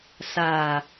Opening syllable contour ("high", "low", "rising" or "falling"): low